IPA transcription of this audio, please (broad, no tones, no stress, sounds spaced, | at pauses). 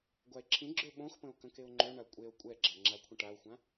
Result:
ɡʷ a e̯ ǁʰ ĩ ɡ͡ǁ ø ɓ õ x p ə̃ o̯ k ə̃ k e o̯ ŋ͡ǃ ø ɳ a kʷʼ e o̯ kʷʼ ɛ ɡ͡ǁ a ŋ͡ǁ a kʷʰ ə̃ ʈ a o̯ xʷ ã